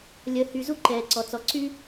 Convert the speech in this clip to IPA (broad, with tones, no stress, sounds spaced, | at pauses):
lʲ ə˩ h y˩ z u˥ ǃ ɛː˩ ǀ ɔ˩ t͡s ɔ˩ ǀ y˥